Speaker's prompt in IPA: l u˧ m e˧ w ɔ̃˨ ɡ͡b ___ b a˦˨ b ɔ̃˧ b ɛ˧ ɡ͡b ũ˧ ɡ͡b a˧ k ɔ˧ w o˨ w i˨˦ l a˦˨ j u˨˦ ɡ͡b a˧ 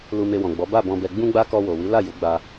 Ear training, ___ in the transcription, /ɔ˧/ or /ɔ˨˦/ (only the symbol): ɔ˨˦